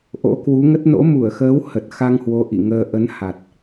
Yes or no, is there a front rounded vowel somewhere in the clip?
no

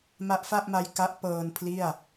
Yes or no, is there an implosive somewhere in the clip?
no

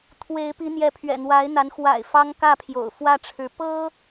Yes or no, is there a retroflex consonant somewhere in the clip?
yes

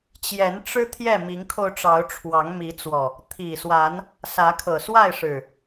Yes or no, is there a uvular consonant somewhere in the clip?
no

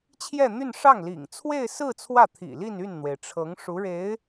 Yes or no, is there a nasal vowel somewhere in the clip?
no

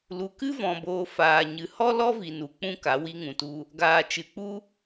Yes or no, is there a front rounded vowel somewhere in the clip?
no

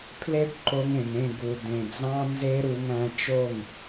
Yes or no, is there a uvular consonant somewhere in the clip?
no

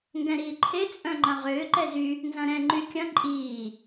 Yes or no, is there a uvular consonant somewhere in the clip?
yes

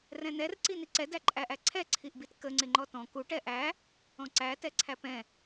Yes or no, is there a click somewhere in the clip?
yes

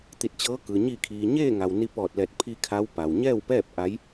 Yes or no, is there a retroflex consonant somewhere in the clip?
no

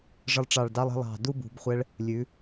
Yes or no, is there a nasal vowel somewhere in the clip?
no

